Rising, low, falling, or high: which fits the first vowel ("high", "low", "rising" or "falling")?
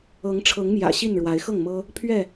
rising